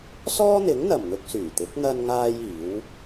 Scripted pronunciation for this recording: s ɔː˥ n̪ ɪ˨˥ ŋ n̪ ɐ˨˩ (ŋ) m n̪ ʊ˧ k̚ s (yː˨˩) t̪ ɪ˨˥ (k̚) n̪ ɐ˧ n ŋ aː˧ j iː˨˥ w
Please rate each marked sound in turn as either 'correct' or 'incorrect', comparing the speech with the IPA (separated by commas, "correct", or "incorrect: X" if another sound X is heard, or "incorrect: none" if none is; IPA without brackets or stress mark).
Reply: incorrect: none, correct, correct